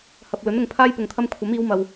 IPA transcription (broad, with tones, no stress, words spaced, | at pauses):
hɐ˨p̚lɵ˨˥n ʊ˧ŋpʰaː˥j pʊ˧ŋt̪ʰɐ˥m kʷʰɐ˨˥miː˨˧wmɐ˨w